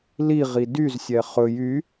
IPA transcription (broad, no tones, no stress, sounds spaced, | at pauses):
l i ʁ i d y z sʲ ɛ χ ɵ j y